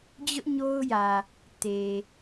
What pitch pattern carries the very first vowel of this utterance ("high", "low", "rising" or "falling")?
high